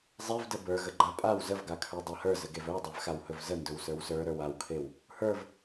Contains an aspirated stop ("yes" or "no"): yes